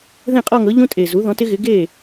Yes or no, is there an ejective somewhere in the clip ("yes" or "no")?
yes